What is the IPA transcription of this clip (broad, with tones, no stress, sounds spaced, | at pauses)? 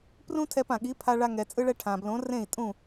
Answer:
p r ũ˥ tʰ ɛ˧ p ã˩ ɠ i˩˥ pʰ a˧ ɭ a˧ ŋ ɛ˩ t͡sʼ ɯ˧ ɭ ɛ˧ ʈʰ ã˩ b l õ˩˥ r ẽ˥˩ i̯ tʼ ũ˥˩